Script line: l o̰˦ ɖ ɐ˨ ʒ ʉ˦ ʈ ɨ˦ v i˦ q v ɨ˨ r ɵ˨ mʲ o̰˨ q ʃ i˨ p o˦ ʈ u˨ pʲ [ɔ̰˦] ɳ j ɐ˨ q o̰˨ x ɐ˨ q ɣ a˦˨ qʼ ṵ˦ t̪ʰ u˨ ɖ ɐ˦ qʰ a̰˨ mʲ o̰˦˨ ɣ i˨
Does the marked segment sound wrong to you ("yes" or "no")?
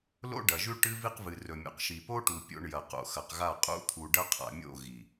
yes